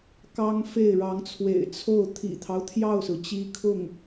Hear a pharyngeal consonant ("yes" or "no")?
no